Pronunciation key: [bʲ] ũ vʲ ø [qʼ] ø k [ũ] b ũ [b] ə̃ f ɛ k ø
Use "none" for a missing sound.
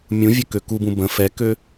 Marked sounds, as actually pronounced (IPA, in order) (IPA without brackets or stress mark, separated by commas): mʲ, k, u, b